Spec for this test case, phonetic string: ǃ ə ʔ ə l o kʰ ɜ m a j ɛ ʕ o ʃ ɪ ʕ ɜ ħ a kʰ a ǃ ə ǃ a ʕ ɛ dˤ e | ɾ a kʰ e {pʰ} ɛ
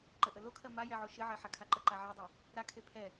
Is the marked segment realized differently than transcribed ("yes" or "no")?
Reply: no